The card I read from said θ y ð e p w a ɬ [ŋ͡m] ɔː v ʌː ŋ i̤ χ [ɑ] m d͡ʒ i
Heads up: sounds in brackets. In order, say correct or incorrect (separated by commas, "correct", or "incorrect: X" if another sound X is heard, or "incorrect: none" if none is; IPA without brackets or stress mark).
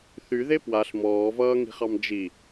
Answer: incorrect: m, correct